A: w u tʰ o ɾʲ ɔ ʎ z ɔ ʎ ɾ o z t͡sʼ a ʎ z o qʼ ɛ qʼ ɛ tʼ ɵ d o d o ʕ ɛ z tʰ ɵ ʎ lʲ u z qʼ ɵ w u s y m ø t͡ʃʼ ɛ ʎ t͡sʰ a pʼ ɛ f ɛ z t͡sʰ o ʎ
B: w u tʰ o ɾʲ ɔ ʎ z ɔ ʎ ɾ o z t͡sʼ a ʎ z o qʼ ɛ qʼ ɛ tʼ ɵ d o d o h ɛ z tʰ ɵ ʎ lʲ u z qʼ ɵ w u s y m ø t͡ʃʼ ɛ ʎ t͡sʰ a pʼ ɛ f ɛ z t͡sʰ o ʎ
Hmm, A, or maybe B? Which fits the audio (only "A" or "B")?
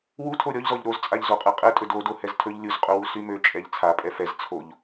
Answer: B